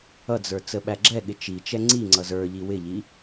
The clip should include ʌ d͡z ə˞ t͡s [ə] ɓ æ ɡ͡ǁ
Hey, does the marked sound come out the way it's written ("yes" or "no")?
yes